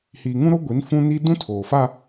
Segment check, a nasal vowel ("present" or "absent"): present